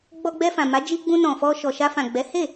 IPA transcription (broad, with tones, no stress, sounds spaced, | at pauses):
ɡ͡b ɔ˧ ɡ͡b ɛ˧ f ã˨ m a˨˦ d͡ʒ i˧ ɡ͡b ũ˧ n ɔ̃˨ f ɔ˧ ʃ ɔ˨ ʃ a˧ f ã˨ ɡ͡b ɛ˨˦ h e˦˨